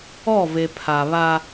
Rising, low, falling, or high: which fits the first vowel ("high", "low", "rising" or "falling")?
falling